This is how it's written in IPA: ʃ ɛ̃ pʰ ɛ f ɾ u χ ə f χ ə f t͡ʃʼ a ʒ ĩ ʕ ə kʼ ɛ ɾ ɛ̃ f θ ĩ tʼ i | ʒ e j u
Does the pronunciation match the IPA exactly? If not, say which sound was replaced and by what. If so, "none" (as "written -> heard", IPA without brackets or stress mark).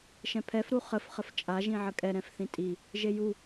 none